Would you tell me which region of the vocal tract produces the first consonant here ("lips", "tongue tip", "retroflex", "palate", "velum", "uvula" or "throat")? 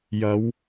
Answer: palate